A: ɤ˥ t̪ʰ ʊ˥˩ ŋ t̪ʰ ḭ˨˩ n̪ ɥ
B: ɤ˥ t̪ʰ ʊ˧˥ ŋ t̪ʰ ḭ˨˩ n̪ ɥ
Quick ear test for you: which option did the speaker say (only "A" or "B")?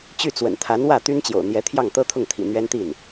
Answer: A